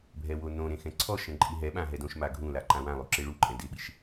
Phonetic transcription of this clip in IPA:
bʱ ɛ w o n õ ɾ ẽ x ɛ̃ ǀʰ ɔ ʃ ɛ̃ ǃʼ i ɦ ɛ ɓ ã ɦ ɛ d õ ʃ m a ɡʱ ũ l a ǃ ã w ã lˠ u ǁ e ɭ u ǃʼ ɛ̃ d ɪ ɓ i ʃ

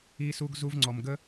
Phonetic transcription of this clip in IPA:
i˧ s u˧ ɡ z u˧ v ŋ͡ǀ ɔ˨ m ɡ ə˦

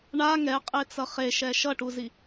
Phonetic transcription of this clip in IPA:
ɳ a ŋ ɛ qʼ e t͡s ʌ χ e ʃ ɛ ʃ ʌ ʈ u z i

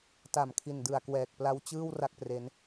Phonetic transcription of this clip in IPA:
t a˨˩ m kʰ i˨˩ n d ɯ˨˩ a̯ k w ɛː˨˩ k̚ p l a˦˥ w t͡ɕ ɯː˥˩ w r a˥˩ k̚ p r e˦˥ n

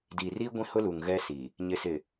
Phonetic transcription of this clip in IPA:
d iː˨ r iː˦ ɡʷ ĩ˦ h ʊ˦ l u˨ ŋ ɣ ɛ˦ s i˨ | ɲ ɪ˨ s ɪ˨

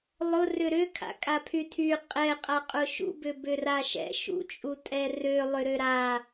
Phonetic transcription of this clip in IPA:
lˠ ʊ r ʏ ɾ ʏ kʰ a̰ kʼ a pʰ y tʰ y qʼ ɛ qʼ a qʼ ʊ ʃ ṵ b ʏ b ʏ r a ʃ ɛ̰ ʃ ṵ t͡ʃʼ u tʼ ɛ r ø lˠ ʏ ɾ ø ɾ a

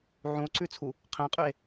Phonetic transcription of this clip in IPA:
ʕ ũ o̯ ǀ ʉ t͡sʰ u | qʰ ɛ̃ qʼ ʉ e̯

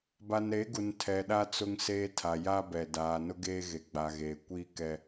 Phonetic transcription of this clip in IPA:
b a˨ n ɾ e˨˦ ɡ u˨ n tʰ ɛ˨ ɗ a˦ t͡s ʊ˦ ŋ s eː˦ tʰ a˨ j a˦ b ɛ˨ d aː˨ n ʊ˦ ɡ eː˦ ɣ e˨ ɡ͡b a˨ ɣ eː˨ kʷ iː˦ k ɛ˦

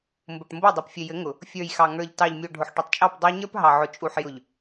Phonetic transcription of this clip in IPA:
m b ʊ˨ ʈ m b o˦˨ dˤ u˨ p fʲ ɘ˨ j ɘ˨˦ ŋ ʊ˨ | fʲ ə˞˨ j x ɑ˨ ŋ ə˞˨ ʎ t ɑ˨ ʎ mʲ o˨ ɖʱ ʊ˨ ħ ʈ ɘ˨ tˤ t͡ʃʼ ɑ˦˨ p dˤ ə˞˦ ɲ ə˞˦ p ɦ ɑ˨ ʕ ʊ˨ t͡ʃʼ u˨ ħ j ʊ˨ ʎ

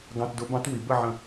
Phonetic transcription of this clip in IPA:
ɡ ɑ̃˧˥˧ t d ʊ˧˥ b ɑ̃˧˥ t w i˩˧ b ə˥˨ ʕ ə̃˧˩

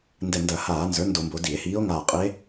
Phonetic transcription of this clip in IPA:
n d ɛ˧˩ n d ɐ˧˩˧ h aː˧˩˧ n z ə˞˩˥ n d o˧˩˧ m b o˩˧ d i˧˩˧ e̯ h iː˧˥ o̯ ŋ aː˧˩ qʼ i˧˥ e̯

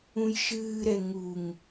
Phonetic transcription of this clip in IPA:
ũ j ʃ ɨː ɾ ɛ ŋ u ŋ

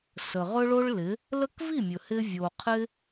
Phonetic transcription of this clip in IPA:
s ə˨ ʁ ɵ˦ ɭ o˦ ɭ l ɪ˨˦ | l ə˦ k v i˦˨ mʲ ɵ˨ h ɪ˧ vʲ o˨ qʰ ɪ˦

